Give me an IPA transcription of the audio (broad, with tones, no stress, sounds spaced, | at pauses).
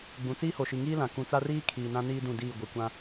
ɡ͡b ũ˨ t͡s iː˦ h o˨ ʃ i˨ ŋ iː˦ l ã˨ k ũ˨ t͡s a˦ r iː˦ kʰ iː˨ n ã˦ n iː˦ d ũ˦˨ d iː˦˨ ɡʷ ɪ˨ kʷ ã˦